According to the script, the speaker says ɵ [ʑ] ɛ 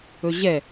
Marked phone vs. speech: correct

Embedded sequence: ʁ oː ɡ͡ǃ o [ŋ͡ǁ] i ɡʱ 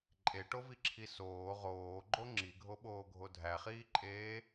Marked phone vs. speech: correct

